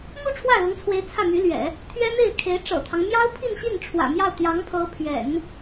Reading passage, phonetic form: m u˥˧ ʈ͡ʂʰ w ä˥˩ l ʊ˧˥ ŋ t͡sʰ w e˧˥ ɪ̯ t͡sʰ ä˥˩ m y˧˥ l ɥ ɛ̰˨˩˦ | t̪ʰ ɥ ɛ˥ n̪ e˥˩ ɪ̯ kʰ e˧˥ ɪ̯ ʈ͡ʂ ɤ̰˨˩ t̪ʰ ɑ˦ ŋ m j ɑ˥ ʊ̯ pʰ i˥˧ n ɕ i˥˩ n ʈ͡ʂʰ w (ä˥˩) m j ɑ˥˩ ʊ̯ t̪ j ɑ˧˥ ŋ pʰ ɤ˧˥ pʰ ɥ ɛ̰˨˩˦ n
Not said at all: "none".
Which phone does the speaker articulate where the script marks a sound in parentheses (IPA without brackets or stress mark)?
ä̰˨˩